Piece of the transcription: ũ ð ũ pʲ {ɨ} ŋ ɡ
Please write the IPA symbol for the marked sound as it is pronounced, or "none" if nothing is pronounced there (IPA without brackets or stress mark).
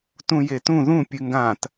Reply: ɨ